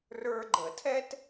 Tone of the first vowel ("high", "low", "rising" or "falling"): high